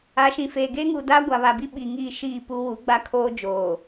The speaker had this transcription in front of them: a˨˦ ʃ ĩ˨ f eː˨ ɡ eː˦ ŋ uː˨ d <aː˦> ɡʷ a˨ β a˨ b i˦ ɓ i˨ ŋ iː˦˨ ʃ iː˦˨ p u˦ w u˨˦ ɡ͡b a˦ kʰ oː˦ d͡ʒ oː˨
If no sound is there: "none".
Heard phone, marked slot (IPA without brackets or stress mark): aː˦